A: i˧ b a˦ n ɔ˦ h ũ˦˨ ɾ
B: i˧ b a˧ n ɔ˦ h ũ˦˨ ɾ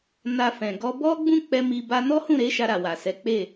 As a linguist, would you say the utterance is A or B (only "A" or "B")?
B